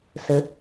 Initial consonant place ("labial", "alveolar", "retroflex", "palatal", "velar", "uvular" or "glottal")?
alveolar